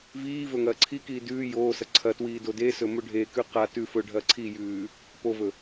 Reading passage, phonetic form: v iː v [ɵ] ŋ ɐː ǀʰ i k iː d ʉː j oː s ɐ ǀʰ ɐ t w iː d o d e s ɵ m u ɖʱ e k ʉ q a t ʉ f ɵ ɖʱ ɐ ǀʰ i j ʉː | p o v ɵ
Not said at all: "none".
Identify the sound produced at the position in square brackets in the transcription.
ɵ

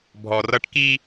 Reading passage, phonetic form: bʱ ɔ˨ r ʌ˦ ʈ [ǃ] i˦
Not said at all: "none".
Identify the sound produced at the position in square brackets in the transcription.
k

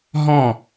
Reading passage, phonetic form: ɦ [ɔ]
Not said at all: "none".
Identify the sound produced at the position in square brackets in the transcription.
ɔ̃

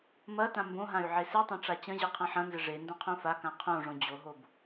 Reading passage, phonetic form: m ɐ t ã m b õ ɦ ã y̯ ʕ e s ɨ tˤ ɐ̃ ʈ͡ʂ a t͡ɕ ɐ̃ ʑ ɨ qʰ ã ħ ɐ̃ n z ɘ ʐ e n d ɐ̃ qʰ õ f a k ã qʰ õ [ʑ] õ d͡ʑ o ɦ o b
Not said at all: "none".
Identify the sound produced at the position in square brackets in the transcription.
ʐ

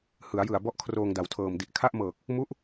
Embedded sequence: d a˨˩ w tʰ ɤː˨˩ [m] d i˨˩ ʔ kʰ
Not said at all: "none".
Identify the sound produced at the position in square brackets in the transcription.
m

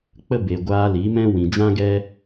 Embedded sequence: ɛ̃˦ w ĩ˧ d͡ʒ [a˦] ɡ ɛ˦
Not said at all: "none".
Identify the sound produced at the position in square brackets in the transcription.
ã˦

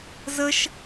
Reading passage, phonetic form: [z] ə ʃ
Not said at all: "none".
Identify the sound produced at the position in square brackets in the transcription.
z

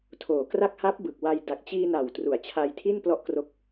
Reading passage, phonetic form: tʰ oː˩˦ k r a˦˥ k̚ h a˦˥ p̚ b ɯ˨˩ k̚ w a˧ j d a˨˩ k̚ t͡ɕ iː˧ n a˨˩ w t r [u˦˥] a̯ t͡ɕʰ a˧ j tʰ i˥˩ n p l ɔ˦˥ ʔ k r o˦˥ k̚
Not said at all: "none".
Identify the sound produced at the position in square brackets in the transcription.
u˩˦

